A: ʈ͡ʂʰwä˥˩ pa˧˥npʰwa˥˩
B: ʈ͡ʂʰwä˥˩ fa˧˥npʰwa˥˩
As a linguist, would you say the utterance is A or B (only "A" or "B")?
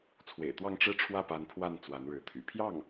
A